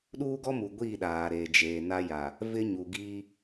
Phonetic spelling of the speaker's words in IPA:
ɗ uː˦ ɡ ɔ˦ m u˨ ɡʷ i˦˨ ɗ aː˨ ɾ eː˨ d͡ʒ eː˨ n a˦ j a˨ | v ɪ˦ ɲ u˨ ɡ iː˦

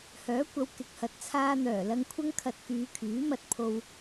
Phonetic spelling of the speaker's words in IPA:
h œː˨˥ kʷ ɐ˨˧ w k ɪ˨ k̚ h ɐ˨ t̚ t͡sʰ aː˧ n̪ œː˨˩ l ɐ˧ ŋ kʷʰ ɐ˥ ŋ kʰ ɐ˧ t̚ k yː˨˧ kʰ yː˨˥ m ɐ˧ t̚ pʰ o˨ w

